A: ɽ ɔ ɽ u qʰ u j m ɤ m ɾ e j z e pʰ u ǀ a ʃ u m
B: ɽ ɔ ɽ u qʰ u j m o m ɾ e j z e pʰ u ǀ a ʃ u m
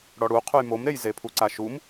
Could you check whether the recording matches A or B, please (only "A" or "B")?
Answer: B